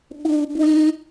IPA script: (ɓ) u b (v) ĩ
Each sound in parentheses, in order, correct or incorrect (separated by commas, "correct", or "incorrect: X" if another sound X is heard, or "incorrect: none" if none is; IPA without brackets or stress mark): correct, incorrect: w